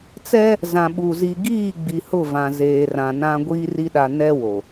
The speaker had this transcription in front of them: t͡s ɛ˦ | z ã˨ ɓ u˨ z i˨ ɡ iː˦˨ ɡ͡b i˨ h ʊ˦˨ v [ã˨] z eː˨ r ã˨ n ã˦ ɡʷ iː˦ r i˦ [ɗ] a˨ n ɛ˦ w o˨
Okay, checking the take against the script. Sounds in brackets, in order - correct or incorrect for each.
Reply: correct, correct

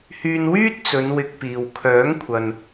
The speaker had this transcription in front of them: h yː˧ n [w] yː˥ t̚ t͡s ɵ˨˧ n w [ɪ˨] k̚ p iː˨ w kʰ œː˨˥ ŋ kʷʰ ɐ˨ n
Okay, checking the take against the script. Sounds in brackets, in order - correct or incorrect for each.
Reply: correct, incorrect

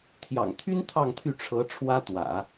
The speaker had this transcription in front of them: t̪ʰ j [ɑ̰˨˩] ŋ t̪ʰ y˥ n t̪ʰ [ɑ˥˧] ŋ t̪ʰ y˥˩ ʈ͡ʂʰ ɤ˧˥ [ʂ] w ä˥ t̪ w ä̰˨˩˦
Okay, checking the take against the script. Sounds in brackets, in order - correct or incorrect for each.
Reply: correct, correct, incorrect

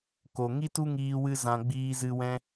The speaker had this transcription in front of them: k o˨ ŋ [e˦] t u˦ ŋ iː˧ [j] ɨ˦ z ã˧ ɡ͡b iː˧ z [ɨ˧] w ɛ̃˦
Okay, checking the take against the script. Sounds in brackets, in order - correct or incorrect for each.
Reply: incorrect, incorrect, correct

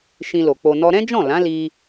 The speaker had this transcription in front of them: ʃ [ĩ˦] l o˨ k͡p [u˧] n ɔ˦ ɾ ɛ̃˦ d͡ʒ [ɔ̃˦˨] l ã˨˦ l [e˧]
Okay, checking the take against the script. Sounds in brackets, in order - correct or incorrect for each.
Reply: incorrect, incorrect, correct, incorrect

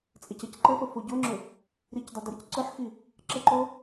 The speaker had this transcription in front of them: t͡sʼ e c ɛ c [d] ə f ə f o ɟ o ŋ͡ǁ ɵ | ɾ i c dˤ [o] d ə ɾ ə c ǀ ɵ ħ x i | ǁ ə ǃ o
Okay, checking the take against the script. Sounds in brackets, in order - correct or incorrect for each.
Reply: incorrect, incorrect

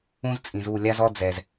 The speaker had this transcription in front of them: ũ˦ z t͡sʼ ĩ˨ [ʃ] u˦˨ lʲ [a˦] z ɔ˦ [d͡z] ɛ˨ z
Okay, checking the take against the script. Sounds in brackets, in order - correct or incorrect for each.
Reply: incorrect, correct, correct

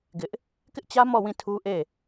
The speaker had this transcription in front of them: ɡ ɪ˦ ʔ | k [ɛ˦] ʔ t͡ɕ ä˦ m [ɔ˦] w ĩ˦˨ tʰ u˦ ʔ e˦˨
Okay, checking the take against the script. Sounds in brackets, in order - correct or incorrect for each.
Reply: incorrect, incorrect

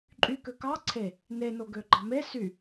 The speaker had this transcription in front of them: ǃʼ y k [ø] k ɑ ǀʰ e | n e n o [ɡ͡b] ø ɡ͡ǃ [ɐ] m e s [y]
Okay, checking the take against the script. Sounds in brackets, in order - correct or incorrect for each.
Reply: correct, incorrect, incorrect, correct

